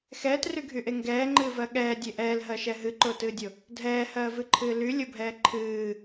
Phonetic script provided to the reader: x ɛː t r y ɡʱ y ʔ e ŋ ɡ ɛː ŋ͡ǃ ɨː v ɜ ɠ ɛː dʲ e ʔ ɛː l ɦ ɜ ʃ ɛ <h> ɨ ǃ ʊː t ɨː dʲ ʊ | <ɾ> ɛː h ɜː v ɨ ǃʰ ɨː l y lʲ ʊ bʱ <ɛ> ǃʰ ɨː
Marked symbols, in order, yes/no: no, no, no

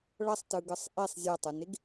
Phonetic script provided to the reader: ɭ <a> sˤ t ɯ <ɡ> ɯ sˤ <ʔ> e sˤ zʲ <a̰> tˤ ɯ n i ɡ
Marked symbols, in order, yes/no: no, yes, yes, no

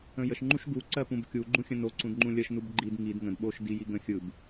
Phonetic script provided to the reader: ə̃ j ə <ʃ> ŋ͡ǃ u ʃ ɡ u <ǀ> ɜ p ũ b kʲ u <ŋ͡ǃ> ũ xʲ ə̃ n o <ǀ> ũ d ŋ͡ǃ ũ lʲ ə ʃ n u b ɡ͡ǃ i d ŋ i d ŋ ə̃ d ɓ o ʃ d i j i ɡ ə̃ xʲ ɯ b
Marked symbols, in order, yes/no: yes, yes, no, yes

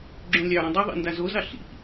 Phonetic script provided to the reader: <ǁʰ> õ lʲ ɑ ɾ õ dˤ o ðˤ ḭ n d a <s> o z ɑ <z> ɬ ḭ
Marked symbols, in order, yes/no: no, no, no

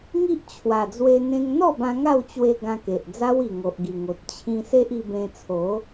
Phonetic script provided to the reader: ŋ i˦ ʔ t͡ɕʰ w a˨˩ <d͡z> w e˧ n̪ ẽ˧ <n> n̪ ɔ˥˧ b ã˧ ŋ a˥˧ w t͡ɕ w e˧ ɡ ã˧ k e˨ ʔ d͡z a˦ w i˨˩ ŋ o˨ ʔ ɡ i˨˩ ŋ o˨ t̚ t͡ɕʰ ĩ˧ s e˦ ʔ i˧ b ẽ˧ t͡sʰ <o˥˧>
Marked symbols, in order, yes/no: yes, no, no

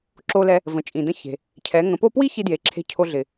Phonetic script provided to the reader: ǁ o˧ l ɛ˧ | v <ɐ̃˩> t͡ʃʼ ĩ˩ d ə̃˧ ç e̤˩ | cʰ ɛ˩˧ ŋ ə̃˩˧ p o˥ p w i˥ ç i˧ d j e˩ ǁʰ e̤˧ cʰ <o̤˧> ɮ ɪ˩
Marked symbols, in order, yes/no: no, no

